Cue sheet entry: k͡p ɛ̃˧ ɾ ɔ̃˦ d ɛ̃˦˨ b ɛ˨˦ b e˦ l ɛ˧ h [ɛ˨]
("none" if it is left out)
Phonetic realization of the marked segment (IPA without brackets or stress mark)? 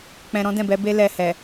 ɛ˨